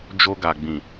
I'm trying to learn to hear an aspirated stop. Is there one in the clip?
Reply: no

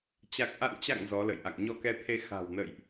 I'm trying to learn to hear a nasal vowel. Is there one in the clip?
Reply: no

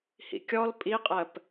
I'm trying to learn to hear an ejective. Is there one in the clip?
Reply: yes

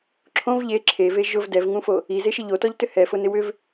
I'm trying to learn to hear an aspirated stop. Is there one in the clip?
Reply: yes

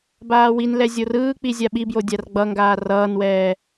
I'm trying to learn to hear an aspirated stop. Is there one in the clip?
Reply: no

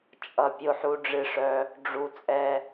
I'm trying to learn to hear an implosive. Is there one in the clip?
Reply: no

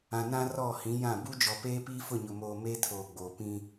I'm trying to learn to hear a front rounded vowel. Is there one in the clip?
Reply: no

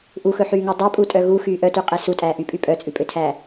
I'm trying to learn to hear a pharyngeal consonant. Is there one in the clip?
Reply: yes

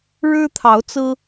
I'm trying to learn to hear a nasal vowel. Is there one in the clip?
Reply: no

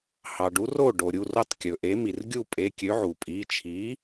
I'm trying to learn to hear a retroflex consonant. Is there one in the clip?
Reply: yes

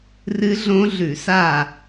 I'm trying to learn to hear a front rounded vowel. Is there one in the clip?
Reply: no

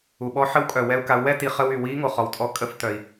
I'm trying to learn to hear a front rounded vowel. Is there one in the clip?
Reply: yes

